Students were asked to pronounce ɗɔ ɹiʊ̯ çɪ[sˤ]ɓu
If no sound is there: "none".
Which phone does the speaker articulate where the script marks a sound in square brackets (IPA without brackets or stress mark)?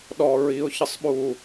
sˤ